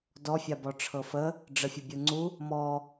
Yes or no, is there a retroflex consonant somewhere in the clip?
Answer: yes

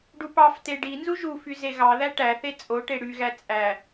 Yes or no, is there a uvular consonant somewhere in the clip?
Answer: no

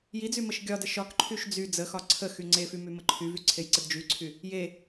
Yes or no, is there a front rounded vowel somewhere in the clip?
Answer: yes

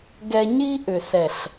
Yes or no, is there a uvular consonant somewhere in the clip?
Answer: no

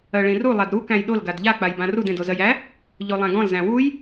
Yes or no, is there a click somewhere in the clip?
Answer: no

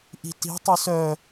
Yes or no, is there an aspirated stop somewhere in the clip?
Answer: no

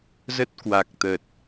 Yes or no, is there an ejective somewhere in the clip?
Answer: no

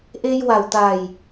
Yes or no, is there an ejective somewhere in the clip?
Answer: no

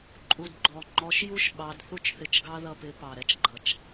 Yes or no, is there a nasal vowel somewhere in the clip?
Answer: no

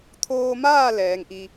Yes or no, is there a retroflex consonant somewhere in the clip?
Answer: no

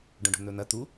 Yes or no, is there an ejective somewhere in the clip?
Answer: no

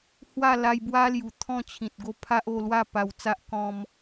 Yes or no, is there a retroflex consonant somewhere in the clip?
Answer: no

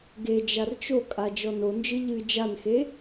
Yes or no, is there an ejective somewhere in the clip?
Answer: yes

